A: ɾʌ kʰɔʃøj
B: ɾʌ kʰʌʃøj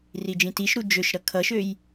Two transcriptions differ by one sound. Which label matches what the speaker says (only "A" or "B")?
B